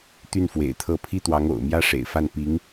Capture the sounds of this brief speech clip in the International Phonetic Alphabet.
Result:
t̪ y˥˩ n f w ḛ˨˩ ɪ̯ t̪ʰ ɤ˥˩ pʰ i˥ t̪ w ɑ˧˥ ŋ o̰˨˩ ʊ̯ m j ä˥ ʂ ḛ˨˩ ɪ̯ f a˥˩ n p i˧˥ ŋ

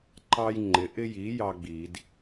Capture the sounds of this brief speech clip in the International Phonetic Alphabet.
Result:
ǃ ɑ˦ j ŋ͡ǃ ɪ˩˥ ʔ ɪ˦ j i˩˥ j ɑ˦ ɡ͡b i˨˩˦ d

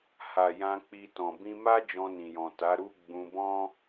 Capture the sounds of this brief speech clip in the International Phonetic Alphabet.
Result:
h a˨ j ã˧ k͡p i˧ t ɔ̃˨ b ĩ˧ m a˦ d͡ʒ ɔ̃˧ n ĩ˨ j ɔ̃˨ t a˨˦ ɾ u˦ ɡ͡b ũ˧ b ɔ̃˦

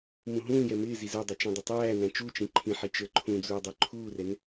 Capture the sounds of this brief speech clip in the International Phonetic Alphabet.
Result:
m ũ ɦ ũː j ɛ m ɪː z i z ə˞ dˤ ɛ t͡ʃ ɛ̃ dˤ ɪ tˤ æː n æ̃ t͡ʃ u t͡ʃ ĩ ǃʰ ĩ ħ i t͡ʃ ə˞ ǃʰ ũ d͡z uː dˤ ə˞ ǃʰ uː r ɛ n

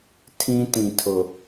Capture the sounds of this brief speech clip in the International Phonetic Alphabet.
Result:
tʰ ĩ˦ t ĩ˨ tʰ ʊ˨

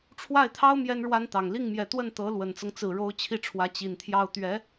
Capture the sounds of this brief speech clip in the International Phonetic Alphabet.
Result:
ʈ͡ʂʰ w a˥˩ ɪ̯ t̪ʰ ɑ˥ ʊ̯ m j ɛ˥ n ɻ w a˥ n t̪ ɑ˨˩ ŋ l i˥˩ ŋ m j ɛ˨˩ t̪ w ə˥˩ n t̪ ɤ˧˥ l w ə˨˩ n t͡s ɤ˦ ŋ t͡s ɹ̩˨˩ ɻ o˧˥ ʊ̯ t͡ɕʰ i˥˩ ʈ͡ʂʰ w ä˧˥ t͡ɕ i˨˩ n t̪ʰ j ɑ˥˩ ʊ̯ t̪ ɥ ɛ˧˥

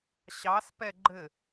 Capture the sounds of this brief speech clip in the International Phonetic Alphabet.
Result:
ɕ ɑ s p ɛ ɡ͡ǃ ɘ

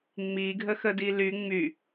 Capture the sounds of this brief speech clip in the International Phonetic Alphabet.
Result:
ŋ͡m i ɡʱ ə x ə d i l y ŋ͡m y

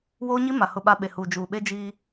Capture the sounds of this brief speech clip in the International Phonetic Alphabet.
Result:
w oː˦ ɲ i˦ m a˨ h ʊ˨ ɓ a˨ ɓ e˨ h uː˨ d͡ʒ uː˨ ɓ e˦ d͡ʒ iː˦

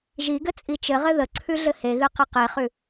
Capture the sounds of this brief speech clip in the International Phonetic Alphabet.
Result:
ʒ i ɡ ɘ t͡sʼ i t͡ʃ ɘ ʁ ɘ ð ə ǀʰ ʉ ɮ ɘ h e ɣ ɨ q ɘ q e χ ʉ

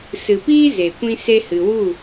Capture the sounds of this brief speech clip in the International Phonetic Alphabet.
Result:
s ɨ˨ p iː˦ z e˨ kʷ ĩ˦ s e˦ h ɨ˧ w u˦˨

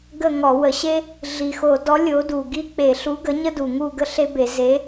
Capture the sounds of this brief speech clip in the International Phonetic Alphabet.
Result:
ɡ ə˥˨ ŋ ɔ˧˩˧ w ə˧˩˧ ɕ e˥ | ɮ i˨˩ x o˧˩˧ d ɔ˨˥ lʲ o˨˥ d u˨˩ ɡ i˥˨ k͡p e˧˩˧ ɬ u˨˥ ɡ ə˨˥ ɲ ə˥ d u˨˩ ŋ u˥˨ ɡ ə˥ ɬ e˥ b e˧˩˧ z e˨˥

